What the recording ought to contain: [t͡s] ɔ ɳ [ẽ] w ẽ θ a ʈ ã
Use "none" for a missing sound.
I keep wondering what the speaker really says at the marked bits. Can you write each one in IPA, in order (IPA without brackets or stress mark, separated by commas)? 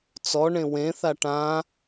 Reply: t͡s, ẽ